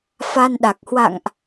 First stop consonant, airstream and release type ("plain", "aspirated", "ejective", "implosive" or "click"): implosive